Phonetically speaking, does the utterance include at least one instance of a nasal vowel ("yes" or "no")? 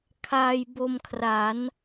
no